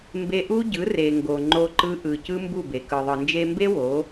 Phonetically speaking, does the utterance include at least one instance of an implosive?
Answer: no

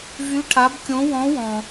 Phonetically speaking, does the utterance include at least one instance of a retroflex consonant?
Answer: yes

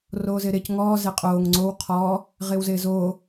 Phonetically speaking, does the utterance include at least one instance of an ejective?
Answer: yes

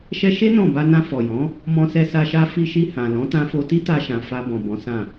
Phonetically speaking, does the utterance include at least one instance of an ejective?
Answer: no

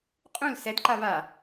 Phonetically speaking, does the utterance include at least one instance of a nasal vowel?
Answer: yes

